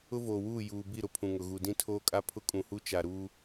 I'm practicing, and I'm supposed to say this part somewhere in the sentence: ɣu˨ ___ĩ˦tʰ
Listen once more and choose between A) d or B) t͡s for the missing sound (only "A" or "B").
A